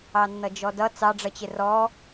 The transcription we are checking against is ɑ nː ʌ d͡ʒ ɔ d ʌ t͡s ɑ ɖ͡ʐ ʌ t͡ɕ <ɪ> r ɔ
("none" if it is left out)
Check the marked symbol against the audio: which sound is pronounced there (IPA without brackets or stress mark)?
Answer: ɪ